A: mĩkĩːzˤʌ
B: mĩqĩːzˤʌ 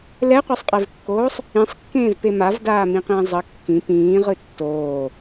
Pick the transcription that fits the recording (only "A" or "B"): B